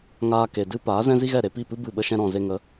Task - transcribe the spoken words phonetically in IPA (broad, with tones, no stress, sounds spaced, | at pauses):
ŋ aː˦ k e˨ d ɨ˦ p aː˨˦ z ɛ̃˦ z i˦ ɣ ɛ˦˨ ɾ e˧ p i˦˨ p ɨ˦ b ɨ˦˨ ɓ ə˦ ʃ ɛ̃˦ ɾ ɔ̃˨ z e˧ ŋ ə˨˦